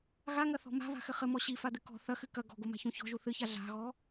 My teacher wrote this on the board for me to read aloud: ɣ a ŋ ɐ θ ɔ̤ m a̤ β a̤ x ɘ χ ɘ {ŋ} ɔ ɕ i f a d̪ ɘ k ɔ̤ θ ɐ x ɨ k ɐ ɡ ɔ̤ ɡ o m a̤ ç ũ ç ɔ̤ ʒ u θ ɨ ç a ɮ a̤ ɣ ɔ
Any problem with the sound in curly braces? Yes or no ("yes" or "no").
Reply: yes